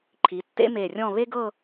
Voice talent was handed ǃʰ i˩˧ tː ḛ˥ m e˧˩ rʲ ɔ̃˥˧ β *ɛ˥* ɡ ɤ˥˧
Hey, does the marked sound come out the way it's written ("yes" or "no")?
no